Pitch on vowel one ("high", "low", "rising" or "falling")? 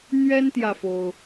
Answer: high